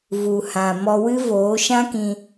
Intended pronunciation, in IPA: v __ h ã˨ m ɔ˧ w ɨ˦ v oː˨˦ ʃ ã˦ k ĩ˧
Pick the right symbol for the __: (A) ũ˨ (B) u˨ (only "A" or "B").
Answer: B